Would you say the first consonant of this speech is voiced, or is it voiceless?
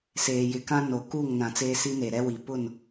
voiceless